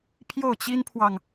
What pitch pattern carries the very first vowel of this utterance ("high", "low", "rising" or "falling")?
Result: falling